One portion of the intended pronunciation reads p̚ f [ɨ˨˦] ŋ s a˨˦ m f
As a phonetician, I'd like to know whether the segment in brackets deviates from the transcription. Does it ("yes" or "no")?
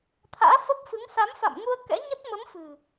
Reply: no